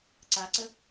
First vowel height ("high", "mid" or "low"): low